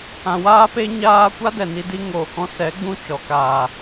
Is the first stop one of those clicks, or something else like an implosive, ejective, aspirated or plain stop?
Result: plain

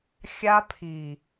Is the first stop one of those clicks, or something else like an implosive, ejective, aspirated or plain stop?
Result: aspirated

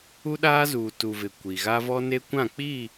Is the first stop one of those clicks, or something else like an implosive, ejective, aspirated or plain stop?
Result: implosive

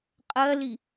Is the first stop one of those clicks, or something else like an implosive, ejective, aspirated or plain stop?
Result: ejective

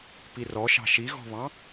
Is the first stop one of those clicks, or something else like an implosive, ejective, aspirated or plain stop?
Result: plain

